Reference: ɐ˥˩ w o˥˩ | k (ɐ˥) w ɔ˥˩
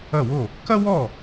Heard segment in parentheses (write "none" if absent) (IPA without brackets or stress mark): ɐ˥